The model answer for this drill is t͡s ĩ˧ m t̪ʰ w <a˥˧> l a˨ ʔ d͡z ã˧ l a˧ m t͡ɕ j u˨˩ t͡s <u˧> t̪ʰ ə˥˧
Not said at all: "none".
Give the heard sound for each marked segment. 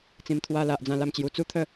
a˧, u˦

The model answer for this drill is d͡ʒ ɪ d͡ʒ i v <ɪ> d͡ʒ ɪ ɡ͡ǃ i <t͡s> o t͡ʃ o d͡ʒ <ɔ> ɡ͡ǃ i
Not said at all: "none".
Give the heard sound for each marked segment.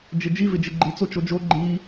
ɪ, t͡s, o

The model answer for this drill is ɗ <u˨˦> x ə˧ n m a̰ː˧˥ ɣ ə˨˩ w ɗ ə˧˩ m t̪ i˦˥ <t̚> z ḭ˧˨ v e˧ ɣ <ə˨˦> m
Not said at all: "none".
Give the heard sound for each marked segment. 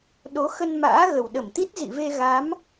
o˨˦, t̚, a˨˦

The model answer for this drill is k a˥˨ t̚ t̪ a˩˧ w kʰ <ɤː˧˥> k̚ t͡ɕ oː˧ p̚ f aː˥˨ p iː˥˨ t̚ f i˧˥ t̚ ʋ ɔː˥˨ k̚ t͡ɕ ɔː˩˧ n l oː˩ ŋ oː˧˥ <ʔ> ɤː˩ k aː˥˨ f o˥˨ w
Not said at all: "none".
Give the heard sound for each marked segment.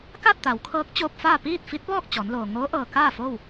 ɤː˧˥, ʔ

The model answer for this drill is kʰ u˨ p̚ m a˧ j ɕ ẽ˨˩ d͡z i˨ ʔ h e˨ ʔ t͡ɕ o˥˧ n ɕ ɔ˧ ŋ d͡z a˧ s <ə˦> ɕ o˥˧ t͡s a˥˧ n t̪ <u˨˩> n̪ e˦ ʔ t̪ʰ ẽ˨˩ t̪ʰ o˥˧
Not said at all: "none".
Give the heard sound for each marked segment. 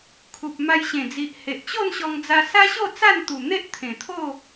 a˦, u˨˩

